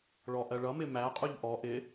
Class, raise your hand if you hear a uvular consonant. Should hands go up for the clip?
yes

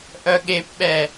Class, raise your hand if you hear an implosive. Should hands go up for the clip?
yes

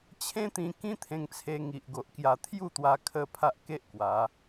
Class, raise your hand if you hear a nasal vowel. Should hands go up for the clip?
yes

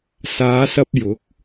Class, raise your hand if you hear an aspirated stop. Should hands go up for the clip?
no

